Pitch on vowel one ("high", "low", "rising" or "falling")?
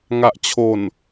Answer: low